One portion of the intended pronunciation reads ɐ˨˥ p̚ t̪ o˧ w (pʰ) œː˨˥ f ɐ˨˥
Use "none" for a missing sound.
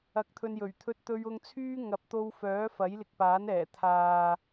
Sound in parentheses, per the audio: f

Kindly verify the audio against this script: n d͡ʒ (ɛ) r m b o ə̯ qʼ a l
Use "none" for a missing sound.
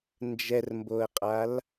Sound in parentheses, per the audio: ɛ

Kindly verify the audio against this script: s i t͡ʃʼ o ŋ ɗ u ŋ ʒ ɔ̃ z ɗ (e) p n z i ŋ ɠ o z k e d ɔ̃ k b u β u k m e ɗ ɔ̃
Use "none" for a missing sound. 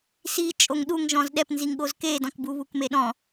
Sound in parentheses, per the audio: ɛ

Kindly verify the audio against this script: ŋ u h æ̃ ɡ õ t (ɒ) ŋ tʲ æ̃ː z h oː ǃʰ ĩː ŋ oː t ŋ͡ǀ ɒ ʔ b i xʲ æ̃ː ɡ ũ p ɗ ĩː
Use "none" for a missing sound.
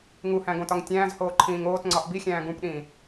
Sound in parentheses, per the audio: ɒ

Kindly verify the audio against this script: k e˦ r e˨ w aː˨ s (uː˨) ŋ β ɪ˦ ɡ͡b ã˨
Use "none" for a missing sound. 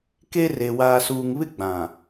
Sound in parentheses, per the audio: uː˨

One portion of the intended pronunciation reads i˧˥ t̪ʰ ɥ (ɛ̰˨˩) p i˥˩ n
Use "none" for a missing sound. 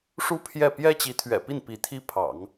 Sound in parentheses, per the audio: ɛ̰˨˩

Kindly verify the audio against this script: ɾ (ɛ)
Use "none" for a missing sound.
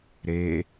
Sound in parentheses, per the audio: e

